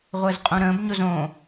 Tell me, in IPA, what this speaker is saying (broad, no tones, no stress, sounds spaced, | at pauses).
ʁʷ əː z qʼ ũ ɾ ə̃ː b ɲ o z õ